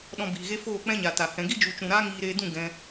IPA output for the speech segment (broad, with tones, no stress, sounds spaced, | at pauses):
ɗ ɔ̃˧ b iː˨ ɣ e˦ f oː˦˨ k͡p ɛ̃˦ ɲ a˨ t a˨ h ɛ̃˨ ɡ i˦ d͡ʒ u˨ t͡ʃ ũ˨ ɾ aː˦ ŋ iː˧ ɾ eː˧ d ũ˦˨ ɡ ɛ̃˧